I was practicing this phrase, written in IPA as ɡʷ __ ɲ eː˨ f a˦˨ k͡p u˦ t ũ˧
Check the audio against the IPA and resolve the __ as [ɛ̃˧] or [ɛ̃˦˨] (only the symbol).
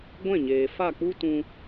ɛ̃˦˨